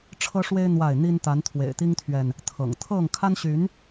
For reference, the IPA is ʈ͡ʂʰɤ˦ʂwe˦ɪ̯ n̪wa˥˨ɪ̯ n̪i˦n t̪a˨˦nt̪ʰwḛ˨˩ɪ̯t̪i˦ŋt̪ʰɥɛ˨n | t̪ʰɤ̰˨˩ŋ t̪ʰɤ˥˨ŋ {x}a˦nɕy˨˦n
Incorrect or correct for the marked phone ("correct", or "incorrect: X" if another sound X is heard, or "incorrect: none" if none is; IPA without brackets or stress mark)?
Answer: incorrect: kʰ